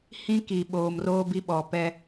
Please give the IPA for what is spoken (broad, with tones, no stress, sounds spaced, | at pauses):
h ĩ˦ k i˨ ɓ oː˨ m r oː˦ b i˦ ɓ ɔ˨ p ɛ˦